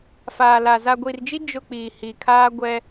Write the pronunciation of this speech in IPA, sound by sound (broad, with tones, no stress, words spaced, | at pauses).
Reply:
faː˨la˨ za˨ɡʷi˨rd͡ʒi˦ d͡ʒʊ˦˨k͡piː˨ hi˨kʰaː˦ɡʷɛ˦